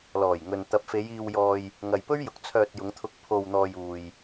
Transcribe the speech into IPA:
l ɔː˨˩ j ŋ ɵ˨ n t̪ ɐ˨˥ p̚ f e˨˧ j iː˧ w j ɔː˧ j | ŋ ɐ˨ j p ɵ˥ ɥ j ʊ˨ k̚ t͡sʰ œː˧ t̚ j ʊ˨˧ ŋ t̪ʰ ʊ˧ k̚ pʰ o˧ w n̪ ɔː˧ j uː˧ j

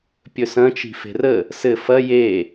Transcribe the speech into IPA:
pʲ ɵ s ɐ̃ t͡ʃ i̤ f e̤ r ə | s ɘ f ɐ j e

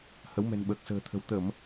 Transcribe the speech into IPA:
h ə˨˦ w m ɛ̤˨˩ n ɓ əː˨˩ k̚ s ə̤ː˨˩ t̪ʰ ə̤˨˩ w t̪ ə˧˩˨ m

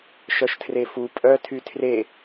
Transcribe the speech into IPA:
ʃ œ ʃ tʰ r e f u pʼ œ tʰ y tʰ r e

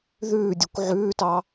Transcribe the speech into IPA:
ð ʉː dʲ ʉ kʷ ʕ ʉː t ɑ

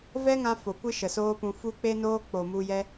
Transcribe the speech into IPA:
v ɛ˦ ŋ ã˦ f o˨ kʷ ɨ˦ ʃ ə˨ s oː˦ p ũ˧ f u˦ k͡p e˦ n oː˦ k͡p o˨ m u˧ j ɛ˦

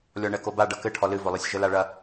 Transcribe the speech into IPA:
lʲ ɔ ɳ ɛ k o b a ɖ ɐ k ɘ ʈʰ ɔ l ɨ v o lˠ ɛ sʲ ʒ ɘ l a ɭ ɐ

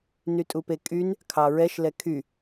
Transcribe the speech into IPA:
n y tʼ u p e kʼ y n | kʰ ɑ ɹ ɛ ʃ l ɛ kʰ y

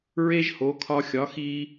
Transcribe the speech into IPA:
ɹ e˥ ʒ h o˩˥ kʰ ɒ˧ xʲ ɒ˩˥ x i˧

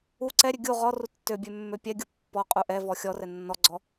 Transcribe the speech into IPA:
u ǀ ɛ ɾʲ ø ɡʲ u ʁ ɔ r u tː ø bʲ ø mː ø pʲ ɛ ɡʲ u pː ɔ qʼ u ʔ ɛ v ɔ xʲ ɔ r ɛ nː ɔ ɡ͡ǀ ɔ

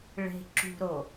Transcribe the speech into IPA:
ɭ e̤ ǁ ṳ ɾ o

